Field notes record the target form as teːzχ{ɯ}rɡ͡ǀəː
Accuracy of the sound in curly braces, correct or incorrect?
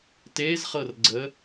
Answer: incorrect: ɤ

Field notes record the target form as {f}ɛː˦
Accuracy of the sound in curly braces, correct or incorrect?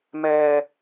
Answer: incorrect: m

